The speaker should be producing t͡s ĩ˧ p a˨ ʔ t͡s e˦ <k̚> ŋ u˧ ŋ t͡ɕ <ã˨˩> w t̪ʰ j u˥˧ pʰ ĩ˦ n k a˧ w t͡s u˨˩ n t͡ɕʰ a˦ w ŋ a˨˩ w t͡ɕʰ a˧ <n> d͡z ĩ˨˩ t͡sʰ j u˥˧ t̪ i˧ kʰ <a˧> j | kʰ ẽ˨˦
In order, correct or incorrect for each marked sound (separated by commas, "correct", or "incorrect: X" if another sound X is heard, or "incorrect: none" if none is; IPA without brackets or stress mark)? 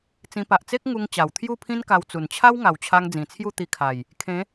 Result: correct, incorrect: a˨˩, incorrect: ŋ, incorrect: a˨˩